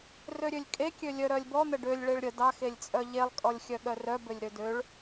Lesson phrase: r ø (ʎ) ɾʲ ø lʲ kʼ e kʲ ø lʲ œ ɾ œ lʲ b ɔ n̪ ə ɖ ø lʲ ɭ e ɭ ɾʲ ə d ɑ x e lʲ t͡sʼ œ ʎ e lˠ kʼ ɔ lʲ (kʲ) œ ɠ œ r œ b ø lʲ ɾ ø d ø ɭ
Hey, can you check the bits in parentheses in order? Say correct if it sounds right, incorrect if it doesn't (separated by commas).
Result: incorrect, incorrect